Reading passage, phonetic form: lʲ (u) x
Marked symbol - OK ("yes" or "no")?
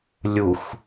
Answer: yes